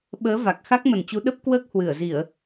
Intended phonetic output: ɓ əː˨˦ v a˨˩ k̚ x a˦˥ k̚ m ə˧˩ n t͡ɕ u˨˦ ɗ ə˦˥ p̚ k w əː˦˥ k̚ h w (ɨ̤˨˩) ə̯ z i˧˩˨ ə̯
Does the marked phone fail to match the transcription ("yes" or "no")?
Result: yes